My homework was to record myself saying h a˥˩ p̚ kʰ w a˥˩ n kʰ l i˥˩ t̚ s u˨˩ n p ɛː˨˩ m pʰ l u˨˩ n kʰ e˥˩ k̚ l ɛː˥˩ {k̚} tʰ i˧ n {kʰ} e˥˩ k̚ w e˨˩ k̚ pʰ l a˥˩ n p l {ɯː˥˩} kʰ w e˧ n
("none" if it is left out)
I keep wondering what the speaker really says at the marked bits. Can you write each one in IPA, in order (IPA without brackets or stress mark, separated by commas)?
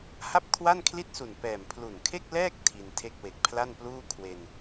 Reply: k̚, tʰ, uː˥˩